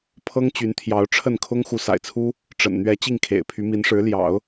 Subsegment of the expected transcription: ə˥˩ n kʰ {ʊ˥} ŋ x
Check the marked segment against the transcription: correct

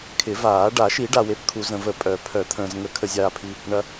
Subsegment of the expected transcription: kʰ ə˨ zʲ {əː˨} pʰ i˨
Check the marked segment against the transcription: incorrect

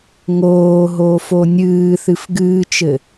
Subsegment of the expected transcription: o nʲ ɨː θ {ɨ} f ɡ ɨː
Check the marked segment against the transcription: correct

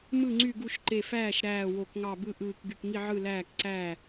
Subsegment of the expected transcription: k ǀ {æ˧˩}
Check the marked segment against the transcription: incorrect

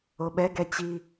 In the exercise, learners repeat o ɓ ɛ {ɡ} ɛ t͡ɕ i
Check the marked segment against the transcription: correct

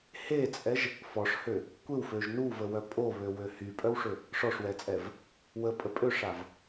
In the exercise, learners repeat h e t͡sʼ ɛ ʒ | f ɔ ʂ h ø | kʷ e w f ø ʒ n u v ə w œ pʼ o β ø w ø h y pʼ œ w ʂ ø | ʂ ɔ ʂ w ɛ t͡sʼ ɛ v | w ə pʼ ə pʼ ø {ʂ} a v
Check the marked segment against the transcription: correct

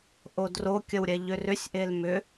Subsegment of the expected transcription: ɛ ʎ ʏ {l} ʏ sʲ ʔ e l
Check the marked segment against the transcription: incorrect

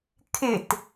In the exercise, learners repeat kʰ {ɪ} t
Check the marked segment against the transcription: correct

